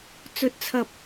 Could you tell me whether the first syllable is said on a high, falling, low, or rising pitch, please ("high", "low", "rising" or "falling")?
rising